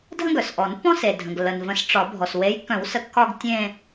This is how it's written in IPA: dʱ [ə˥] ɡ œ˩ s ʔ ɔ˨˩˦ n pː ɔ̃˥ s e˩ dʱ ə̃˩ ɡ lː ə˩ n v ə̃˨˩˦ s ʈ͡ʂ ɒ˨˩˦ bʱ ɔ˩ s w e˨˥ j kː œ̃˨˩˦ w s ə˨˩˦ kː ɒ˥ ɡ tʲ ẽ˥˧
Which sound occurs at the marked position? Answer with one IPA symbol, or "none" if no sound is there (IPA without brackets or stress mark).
ə̃˥